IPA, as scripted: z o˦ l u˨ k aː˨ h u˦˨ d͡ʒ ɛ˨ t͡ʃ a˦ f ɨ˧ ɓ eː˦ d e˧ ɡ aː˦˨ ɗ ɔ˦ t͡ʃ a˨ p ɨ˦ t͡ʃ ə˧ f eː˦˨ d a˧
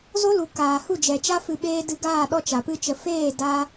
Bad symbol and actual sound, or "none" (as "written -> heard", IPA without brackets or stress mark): e˧ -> ɨ˧